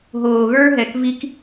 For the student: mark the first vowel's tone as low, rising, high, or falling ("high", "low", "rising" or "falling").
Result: low